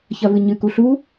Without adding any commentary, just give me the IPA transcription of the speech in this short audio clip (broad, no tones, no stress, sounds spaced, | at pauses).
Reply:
ç ɐ v ɨ ɲ ɨ k u ɬ u